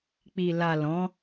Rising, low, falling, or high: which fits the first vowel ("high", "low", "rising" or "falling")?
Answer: low